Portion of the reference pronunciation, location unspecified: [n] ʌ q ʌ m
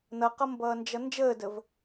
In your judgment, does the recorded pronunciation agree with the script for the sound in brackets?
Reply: yes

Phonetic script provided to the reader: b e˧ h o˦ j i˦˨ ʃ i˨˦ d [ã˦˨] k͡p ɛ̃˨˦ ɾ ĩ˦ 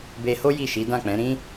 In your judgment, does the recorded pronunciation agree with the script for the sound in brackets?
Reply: yes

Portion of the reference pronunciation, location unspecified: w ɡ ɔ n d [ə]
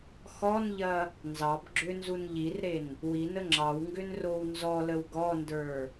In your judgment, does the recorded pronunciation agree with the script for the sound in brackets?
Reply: no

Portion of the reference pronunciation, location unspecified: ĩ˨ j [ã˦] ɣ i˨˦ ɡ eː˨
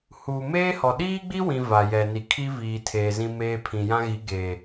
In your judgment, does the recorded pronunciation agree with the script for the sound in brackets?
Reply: yes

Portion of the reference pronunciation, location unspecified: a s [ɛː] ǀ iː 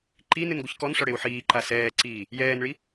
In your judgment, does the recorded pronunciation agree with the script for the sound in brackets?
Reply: yes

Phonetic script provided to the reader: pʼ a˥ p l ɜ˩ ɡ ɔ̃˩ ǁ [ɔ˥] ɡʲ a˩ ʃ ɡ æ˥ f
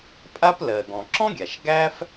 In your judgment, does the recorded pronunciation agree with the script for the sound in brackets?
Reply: no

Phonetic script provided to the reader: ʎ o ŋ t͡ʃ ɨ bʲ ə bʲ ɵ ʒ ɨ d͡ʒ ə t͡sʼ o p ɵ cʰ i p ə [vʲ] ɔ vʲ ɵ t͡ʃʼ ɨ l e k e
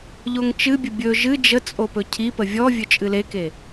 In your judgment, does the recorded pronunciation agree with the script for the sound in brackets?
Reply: yes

